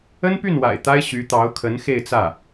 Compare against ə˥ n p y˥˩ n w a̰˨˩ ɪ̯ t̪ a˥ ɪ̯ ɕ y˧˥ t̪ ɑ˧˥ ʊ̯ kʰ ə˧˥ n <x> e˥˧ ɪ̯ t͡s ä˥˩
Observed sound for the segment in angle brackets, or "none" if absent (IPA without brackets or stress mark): x